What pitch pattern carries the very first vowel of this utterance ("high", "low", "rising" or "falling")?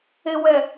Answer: low